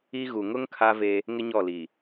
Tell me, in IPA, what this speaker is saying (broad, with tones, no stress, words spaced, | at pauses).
i˦ ɣu˨ŋʊ˦ŋ kʰa˦ ve˦ | ŋɪ˦ɲɔ˦˨li˨